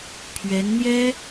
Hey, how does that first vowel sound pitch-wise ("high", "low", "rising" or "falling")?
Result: rising